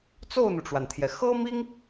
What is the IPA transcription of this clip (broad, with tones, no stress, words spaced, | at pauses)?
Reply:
t͡so˥˩ʊ̯n̪u˩ʈ͡ʂwa˩nt̪ʰjɛ˩ xɤ˥mi˥ŋ